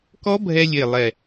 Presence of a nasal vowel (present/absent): absent